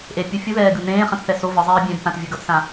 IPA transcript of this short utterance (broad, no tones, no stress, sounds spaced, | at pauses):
ʔ e pʲ u fʲ u ð ɛː ɡ ɯ n ẽː χ ɛ̃ t θ ɛ s o v ɯ zˤ eː bʲ ɛ̃ b θ ã t vʲ ɯ ɡ ʌ t s ã